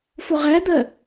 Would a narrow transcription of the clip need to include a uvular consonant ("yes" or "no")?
yes